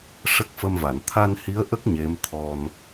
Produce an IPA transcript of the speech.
ʂ ə˦˥ k̚ f ə˧ m v a˨˩˨ n t̪ʰ a˧ n h i˧˥ ə̯ ʔ ə˦˥ k̚ ɲ e˧˥ m t̪ʰ ɔ˧ n

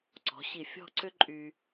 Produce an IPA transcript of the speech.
ǀ ɔ̤˩˧ ɕ i˧˩ fʲ ɔ̤˥˧ ǀ ʏ˥ ǃʼ y˧

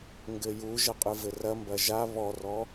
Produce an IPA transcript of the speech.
ŋ ɡ ɘ j u ʒ ɐ qʼ ɨ v ɘ r ɐ m b ɐ ʒ a β ɔ r ɔ

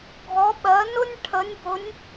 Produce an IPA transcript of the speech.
ɡʱ ɔ˨˦ ɓ ɜ˨˦ n ʊ˥ nʲ ʈʰ ə˨˦ nʲ b ʊ˨˦ nʲ

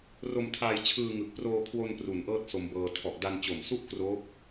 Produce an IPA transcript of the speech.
r o˧ m tʰ aː˧ j t͡ɕʰ ɯː˧ ŋ ɯ˨˩ k̚ p r oː˧ kʰ w o˧ n p r u˩˦ n ʔ ɤː˥˩ t̚ s o˧ m b ɤː˧ tʰ ɔ˨˩ ʔ d a˧ n t͡ɕ o˨˩ m s u˥˩ ʔ k r o˦˥ k̚

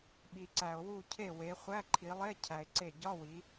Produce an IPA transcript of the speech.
ɓ i˩ ǀ æ˩ o̯ w u˧˩ cʰ e˧˩ w e˩˧ χʷ æ˧˥˧ ǃʰ i˩˧ lˠ e˧˥˧ cʰ æ˩ e̯ ǀ e˧˩ ɟ ɒ˧˥˧ w i˩˧

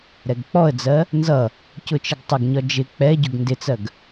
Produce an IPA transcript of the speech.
ɾ ɛ ɡ k͡p ɔ ə̯ d͡z ɜ | n z ʌ | c ʊ t͡ʃ ə ɡ tˤ ə ɡ ɲ ɒ d͡ʒ ɪ k͡p ɛ ɟ ʊ ɡ n d ɪ t͡s ɜ ɡ

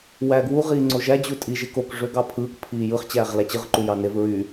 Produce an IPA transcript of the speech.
w æ ɡ w u ʁ iː ŋ͡ǀ o ʒ æ d͡ʑ u tʼ i ʒ e k o k ʐ ø ɡ ɑ pʰ ɯː k pʰ iː j ɯ χ t͡ɕ æː ʁ l æ t͡ɕ ɯ ʁ ǃ u j ɑ n e v ɹ y

